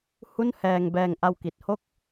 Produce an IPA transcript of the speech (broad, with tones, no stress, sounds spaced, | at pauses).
h u˥˩ n h ɛː˧ ŋ b ɛː˧ ŋ ʔ a˧ w k i˨˩ t̚ h o˥˩ k̚